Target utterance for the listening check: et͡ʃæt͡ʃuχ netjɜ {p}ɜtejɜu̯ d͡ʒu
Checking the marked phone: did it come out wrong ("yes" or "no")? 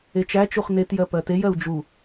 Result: no